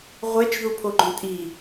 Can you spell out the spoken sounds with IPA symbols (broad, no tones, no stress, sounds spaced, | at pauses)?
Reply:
ʁʷ ɛ t͡ʃ ð u pʰ o ɡ͡ǃ õ tʼ i